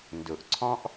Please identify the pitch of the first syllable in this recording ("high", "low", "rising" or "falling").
low